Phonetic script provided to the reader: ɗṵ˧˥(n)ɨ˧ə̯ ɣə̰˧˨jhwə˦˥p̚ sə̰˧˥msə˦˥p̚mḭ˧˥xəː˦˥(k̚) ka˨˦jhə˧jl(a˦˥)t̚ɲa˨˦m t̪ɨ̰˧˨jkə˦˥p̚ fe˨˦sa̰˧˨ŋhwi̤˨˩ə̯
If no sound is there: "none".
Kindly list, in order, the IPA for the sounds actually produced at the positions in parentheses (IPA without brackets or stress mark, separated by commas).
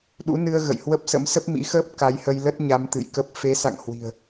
n, p̚, ə˦˥